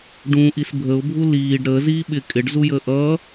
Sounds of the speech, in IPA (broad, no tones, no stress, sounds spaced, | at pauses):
ɖ ũ ʔ i s bʱ ə ʊ̯ bʱ u l iː ɖ ɾ əː z iː ɓ ɪ kʼ ɪ ɖ z u j əː ʔ ʌː